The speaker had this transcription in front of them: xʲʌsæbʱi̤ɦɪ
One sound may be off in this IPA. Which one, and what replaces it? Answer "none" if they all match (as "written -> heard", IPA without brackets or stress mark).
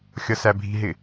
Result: none